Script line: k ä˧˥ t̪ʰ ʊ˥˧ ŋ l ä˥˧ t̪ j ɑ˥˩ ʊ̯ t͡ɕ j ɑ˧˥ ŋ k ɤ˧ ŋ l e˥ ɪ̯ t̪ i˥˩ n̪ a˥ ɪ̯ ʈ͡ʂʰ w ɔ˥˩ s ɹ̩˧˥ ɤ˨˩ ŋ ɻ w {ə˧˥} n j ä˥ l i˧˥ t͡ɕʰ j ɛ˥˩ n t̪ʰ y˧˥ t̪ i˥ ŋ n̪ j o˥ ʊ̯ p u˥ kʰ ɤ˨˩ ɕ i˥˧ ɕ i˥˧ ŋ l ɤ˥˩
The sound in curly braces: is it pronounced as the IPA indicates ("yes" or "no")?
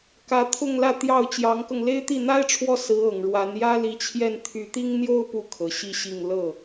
no